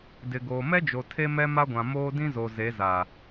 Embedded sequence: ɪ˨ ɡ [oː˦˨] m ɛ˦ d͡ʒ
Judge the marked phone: incorrect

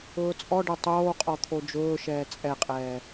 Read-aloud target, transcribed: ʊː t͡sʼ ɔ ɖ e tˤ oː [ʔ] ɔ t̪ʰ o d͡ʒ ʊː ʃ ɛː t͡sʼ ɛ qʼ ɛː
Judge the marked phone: incorrect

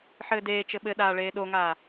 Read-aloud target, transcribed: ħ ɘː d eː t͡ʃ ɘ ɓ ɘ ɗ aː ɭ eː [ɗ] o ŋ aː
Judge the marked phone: correct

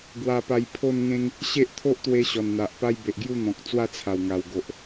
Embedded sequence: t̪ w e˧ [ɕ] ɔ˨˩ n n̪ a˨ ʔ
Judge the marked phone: correct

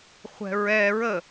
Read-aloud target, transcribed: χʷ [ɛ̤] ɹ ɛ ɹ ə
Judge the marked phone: correct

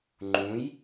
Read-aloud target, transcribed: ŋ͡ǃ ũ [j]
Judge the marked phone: correct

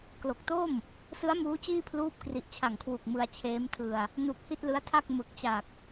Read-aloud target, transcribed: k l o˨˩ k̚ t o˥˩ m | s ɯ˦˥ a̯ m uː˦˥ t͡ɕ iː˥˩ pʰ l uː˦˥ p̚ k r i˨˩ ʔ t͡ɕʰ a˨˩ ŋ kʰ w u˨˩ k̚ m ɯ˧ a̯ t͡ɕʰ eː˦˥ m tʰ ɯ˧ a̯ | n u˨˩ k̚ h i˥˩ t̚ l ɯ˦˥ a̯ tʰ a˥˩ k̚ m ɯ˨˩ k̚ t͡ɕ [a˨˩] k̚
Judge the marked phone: correct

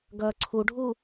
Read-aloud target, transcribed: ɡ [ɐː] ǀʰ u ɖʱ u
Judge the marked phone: correct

